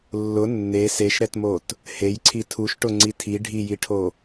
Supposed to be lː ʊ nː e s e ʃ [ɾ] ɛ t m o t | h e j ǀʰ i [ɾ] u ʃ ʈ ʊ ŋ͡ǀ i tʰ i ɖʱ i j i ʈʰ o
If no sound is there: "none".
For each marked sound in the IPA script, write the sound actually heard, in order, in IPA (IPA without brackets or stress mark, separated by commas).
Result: ɾ, tʰ